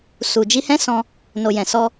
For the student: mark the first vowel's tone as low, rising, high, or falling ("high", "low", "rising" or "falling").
low